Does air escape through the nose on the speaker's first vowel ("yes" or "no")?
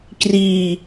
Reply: no